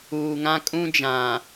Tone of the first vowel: low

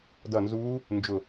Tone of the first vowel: falling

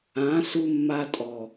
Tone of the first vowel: rising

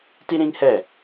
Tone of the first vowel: high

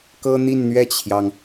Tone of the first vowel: high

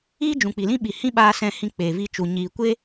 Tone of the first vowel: high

